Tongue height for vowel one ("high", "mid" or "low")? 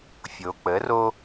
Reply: mid